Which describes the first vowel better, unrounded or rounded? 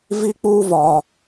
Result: unrounded